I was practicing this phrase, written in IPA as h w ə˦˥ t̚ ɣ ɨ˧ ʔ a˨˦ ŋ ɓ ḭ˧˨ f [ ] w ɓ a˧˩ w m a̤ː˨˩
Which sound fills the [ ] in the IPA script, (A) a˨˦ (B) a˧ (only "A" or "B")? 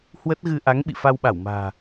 B